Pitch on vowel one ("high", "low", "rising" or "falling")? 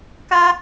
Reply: high